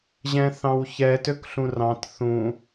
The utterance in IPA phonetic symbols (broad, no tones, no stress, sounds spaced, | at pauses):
ʑ ɛ̃ θ ɑ̃ w ç ɛ t ø k ɬ ũ r ɑ̃ t θ ũ